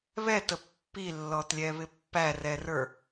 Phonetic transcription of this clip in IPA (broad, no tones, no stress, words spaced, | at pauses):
βɛtə pːilːɔtlʲɛβɪ pːærɛrə˞